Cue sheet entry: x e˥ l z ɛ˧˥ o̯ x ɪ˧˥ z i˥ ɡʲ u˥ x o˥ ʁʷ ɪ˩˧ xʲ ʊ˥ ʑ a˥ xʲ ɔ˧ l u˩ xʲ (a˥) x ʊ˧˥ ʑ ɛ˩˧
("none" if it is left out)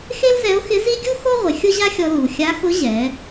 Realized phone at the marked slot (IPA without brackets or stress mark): a˧˥